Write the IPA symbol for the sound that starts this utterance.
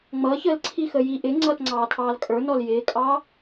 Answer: ŋ͡m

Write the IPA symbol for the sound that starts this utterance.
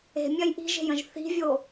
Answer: e̤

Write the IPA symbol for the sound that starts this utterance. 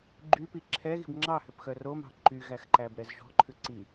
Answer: ɡ͡ǃ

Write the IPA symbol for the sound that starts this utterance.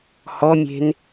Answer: h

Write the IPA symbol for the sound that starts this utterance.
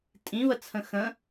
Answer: tʼ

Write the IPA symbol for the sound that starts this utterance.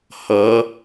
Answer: h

